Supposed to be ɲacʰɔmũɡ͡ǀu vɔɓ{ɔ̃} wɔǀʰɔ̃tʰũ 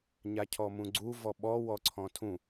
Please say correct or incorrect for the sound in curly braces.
incorrect